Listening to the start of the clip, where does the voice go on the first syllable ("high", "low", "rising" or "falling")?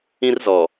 high